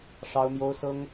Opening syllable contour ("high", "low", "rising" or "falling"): high